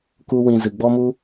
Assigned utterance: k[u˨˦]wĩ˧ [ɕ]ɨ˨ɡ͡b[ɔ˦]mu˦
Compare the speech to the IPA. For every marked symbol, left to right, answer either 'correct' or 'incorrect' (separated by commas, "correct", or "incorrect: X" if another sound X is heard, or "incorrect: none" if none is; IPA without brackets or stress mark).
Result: incorrect: u˦, incorrect: z, correct